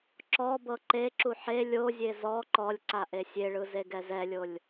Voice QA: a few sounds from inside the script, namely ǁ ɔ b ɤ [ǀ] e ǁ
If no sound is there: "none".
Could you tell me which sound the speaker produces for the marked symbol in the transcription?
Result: ǃ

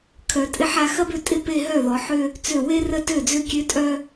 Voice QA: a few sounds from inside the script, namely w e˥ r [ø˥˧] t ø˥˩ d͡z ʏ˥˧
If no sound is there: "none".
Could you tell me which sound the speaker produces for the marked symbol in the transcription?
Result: ə˥˧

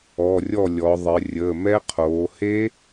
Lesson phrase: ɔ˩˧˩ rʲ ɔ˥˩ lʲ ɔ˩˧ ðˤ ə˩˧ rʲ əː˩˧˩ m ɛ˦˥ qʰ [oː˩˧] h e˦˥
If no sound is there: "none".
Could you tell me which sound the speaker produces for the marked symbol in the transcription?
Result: oː˩˧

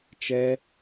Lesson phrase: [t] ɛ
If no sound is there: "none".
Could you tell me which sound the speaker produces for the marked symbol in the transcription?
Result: t͡ʃ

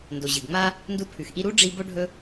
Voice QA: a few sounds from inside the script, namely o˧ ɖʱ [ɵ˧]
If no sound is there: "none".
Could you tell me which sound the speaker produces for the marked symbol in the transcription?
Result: ɵ˧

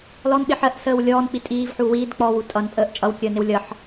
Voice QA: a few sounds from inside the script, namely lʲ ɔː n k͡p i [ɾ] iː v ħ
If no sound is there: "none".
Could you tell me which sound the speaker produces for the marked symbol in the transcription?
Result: tʼ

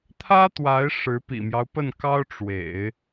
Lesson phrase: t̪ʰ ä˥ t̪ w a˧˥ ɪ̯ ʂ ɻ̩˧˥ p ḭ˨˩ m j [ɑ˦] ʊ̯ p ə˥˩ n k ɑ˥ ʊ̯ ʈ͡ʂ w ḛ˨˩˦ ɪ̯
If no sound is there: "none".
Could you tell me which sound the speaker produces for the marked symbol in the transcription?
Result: ɑ˦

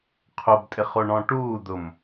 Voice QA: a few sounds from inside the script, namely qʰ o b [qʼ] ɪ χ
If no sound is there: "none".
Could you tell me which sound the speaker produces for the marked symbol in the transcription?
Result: tʼ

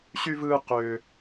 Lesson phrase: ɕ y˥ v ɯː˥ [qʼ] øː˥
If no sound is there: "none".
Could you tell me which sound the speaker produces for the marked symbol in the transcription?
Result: q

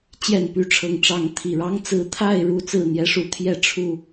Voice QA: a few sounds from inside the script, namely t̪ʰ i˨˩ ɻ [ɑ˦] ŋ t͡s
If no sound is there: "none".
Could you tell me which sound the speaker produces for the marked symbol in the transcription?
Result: ɑ˦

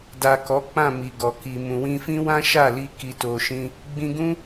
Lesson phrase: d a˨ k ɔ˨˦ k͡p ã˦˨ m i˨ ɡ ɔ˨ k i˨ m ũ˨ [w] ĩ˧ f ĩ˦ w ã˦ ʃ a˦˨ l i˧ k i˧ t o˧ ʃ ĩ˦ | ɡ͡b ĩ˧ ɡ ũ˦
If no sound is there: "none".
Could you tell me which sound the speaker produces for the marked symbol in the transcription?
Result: w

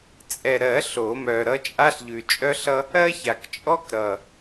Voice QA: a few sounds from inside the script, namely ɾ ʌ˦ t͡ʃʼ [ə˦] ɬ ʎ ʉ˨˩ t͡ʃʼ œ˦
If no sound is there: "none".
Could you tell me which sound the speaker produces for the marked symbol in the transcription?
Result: a˦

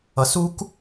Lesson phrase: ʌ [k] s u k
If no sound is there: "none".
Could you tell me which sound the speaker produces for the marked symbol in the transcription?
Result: none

